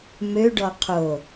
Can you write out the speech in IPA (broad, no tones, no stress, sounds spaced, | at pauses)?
m ø ɖ ɔ qʰ o